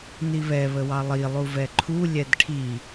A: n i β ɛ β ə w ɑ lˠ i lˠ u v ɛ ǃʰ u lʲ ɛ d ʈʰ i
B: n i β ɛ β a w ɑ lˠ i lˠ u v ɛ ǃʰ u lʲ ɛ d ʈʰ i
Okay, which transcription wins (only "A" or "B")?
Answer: A